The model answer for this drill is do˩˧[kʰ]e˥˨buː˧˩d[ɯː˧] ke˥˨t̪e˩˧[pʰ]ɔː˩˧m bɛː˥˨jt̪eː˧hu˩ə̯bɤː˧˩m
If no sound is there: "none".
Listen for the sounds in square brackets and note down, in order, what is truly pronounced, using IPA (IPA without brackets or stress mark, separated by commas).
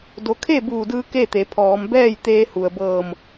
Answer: kʰ, ɯː˧, pʰ